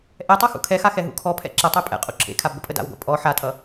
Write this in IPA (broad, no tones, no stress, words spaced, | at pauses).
ʔɛtˤʌ xṵkʰɛxa xɛɦṵkʰɔpʰɛ̰ ǁətˤɛ pʼɛ̰qʼṵ ǁʰḛkʰab ɡʷəpʼəda̰wɡʷa̰ pʼɔ ħatʼʌ